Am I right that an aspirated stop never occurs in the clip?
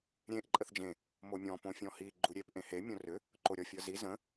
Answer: yes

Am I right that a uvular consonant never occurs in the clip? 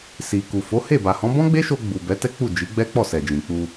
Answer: yes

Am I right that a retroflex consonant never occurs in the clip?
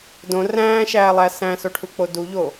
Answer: no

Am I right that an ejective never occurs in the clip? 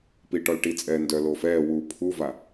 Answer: no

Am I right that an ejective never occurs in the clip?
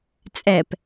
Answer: no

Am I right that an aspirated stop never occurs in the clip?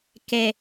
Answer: yes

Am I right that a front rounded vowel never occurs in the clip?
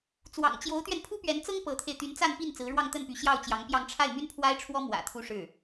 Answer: no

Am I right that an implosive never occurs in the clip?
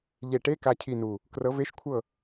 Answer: yes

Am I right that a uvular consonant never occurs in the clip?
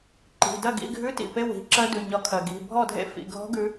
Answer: yes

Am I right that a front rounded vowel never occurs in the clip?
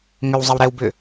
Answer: no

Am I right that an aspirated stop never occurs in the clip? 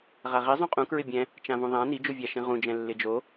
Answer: yes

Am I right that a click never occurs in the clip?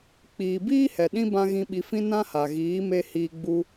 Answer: yes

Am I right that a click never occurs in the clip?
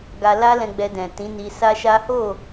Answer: yes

